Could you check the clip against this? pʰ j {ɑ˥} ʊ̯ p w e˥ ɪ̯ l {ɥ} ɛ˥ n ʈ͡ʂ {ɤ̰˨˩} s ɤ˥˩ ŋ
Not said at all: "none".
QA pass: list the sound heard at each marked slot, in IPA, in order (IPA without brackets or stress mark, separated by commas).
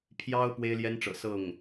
ɑ˥, j, ɤ̰˨˩